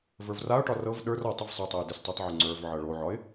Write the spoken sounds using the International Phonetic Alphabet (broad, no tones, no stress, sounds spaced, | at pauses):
v ə˞ v r a ʊ̯ ʈ ɒ r ɤ v ɗ ə˞ r ɔ tˤ ʌ v sˤ ʌ tˤ ʌ ʊ̯ d e s tˤ ʌ tˤ ʕ o ŋ͡ǀ ə˞ v ʕ ɤ ɭ o ʕ ɒ ɪ̯